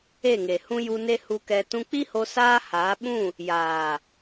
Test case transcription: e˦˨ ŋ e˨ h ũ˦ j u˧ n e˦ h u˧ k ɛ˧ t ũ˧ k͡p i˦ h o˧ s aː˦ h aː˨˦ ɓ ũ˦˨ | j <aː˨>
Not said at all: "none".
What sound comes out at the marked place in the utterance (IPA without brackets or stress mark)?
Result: aː˨